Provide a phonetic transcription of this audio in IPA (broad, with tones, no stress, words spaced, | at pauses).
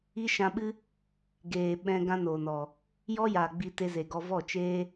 i˦ʃã˧ɓɨ˦ | ɡeː˨ ɓɛ̃˧ ɡã˦noː˨nɔ˨ | jɔ˦jaː˨ ɡ͡bi˧te˧ze˨ɡɔ˧ vɔ˦˨t͡ʃeː˦